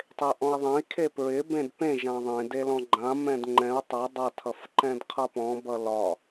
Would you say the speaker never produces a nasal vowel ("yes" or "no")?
no